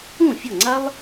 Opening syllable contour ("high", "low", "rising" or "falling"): falling